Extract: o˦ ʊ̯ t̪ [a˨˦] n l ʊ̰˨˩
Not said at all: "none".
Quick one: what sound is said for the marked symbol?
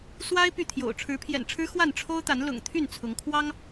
a˨˦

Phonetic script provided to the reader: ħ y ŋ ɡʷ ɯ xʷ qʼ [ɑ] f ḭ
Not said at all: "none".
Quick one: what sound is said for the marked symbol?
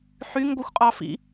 ɑ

